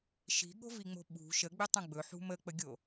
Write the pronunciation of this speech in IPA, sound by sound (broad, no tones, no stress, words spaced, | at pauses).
ʃi̤ɠo̤viŋ͡mo̤ ɓṳ ʃəɡ͡bɪtˤə̃ ɡ͡bɵħṳ mək͡pəɡʲo